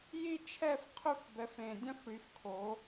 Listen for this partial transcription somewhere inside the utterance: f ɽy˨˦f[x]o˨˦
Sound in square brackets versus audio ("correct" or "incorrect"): incorrect